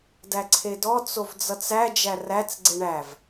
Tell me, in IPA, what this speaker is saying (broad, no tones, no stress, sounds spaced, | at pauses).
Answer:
d æ ǀʰ e d ɔ t͡s o v d͡z ʌ t͡s æ d͡ʒ æ r æ t͡s ɡ͡ǀ e ɳ æ v